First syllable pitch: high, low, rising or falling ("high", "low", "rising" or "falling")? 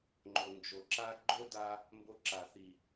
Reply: low